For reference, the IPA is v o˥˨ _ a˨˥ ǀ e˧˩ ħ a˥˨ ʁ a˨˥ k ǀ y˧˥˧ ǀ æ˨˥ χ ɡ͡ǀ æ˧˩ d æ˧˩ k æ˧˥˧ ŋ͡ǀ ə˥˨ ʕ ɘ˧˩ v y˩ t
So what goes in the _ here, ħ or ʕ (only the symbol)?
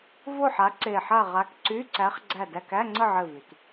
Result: ħ